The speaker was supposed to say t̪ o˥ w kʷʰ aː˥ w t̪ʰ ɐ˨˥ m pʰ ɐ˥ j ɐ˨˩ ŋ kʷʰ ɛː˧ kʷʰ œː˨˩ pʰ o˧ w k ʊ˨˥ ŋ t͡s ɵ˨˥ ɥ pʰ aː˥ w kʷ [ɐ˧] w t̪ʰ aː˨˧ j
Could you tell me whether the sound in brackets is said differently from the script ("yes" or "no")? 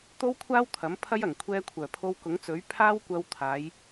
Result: no